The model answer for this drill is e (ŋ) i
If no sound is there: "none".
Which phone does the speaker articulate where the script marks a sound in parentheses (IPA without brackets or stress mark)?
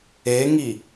ŋ